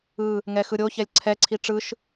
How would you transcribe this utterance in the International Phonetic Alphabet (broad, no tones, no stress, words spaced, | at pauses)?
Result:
ɯ | ŋɛxɯɾʲo çɛlʲǀʰɛ ǀʰiʈ͡ʂɯʃ